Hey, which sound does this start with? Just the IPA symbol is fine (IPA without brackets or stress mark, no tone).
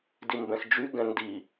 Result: d